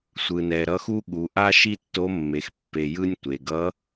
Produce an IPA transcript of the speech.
sʷ ɯ˩ n ɛ˩ ɾ ʌ˧˥ x u˥ ɠ u˩˧ ʔ a˥ ʃ i˥ tː o˧˥ mː e˩ x pː e˩ j ɯ˧ nʲ tʷ e˩ ɡ ʌ˧˥

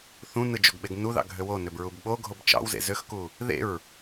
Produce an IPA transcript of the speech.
θ ũ n ɯ d͡ʒ o ɡ ɓ e ɡ n u ð ɑ̰ ɡʱ ø w o n ø b ɹ u b ɓ o ɡʱ o b t͡ʃ ɑ̰ w z ḛ z ø x k u | ð ḛ ɹ

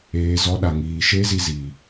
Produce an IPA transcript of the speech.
eː˨ z ɔ˧ ɗ a˨ ŋ iː˨ ʃ e˦ z i˧ z iː˨

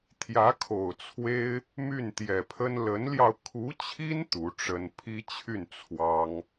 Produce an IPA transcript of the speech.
t̪ʰ j ä˧˥ kʰ o˨˩ ʊ̯ t͡sʰ w e˥ ɪ̯ | m y˥˩ n t̪ j ɛ˨˩ pʰ ə˥ n l ə˧˥ n l j ɑ˧ ʊ̯ kʰ u˧˥ t͡ɕʰ i˥ n t̪ u˧˥ ʈ͡ʂ ə˥ n pʰ i˥ t͡ɕʰ y˥˩ n t͡sʰ w ɑ˥ ŋ

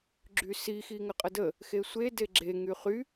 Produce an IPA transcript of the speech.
ɡ͡ǁ y s i x i ŋ ə qʼ ə d ə | x e sʷ e d e ɡ͡ǁ e ŋ y χ y

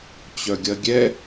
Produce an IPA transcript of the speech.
t͡ɕ œ ɡʲ ɐ ɡʲ ɛ

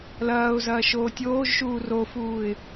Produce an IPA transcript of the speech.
l ɐː ʊ̯ z ɐː ʃ oː tʲ oː ʒ ʃ uː r o f uː ɪ̯

